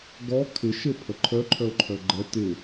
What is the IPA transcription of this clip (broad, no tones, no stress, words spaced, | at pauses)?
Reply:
ɡɔ kʰɪʃepʰə ǃʰœǃʰœo̯ ǃʰœɡ͡ǃɛ tɪ